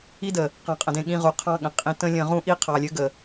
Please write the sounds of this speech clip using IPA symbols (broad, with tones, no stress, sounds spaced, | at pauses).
i˦ d ə˨ | q ɑ̃˧ qʼ ə̃˧ d ẽ˧ ɠ ĩ˧ ʁ u˨ qʰ ɑ̃˦ ɠ ə̃˨ qʼ ĩ˧ t ə̃˦ lʲ ə̃˧ ʁ ũ˦ ʔ i˦ qʰ ɑ˨ lʲ ɘ˨˦ ɡ ə˨